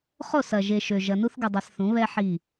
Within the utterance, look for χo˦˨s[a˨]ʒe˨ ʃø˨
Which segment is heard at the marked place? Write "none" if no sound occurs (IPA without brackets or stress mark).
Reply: ɐ˨